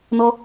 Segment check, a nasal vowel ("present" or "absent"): absent